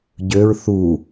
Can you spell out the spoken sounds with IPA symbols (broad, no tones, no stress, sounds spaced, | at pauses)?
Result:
ɟ ø ɹ θ u